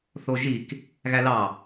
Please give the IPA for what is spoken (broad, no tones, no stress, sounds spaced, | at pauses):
θ o ʒ i k | ɣ æ l ɑ